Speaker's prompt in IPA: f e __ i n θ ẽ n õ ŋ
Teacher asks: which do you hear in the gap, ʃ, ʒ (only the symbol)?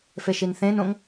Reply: ʃ